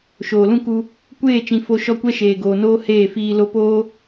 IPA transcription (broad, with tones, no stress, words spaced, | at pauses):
ʃoː˨lũ˦ku˧ | kʷeː˦˨t͡ʃĩ˨ fo˧ ʃɔ˦kʷɛ˦ʃeː˨ɡoː˨ noː˦heː˦˨ fiː˧ lo˧ poː˦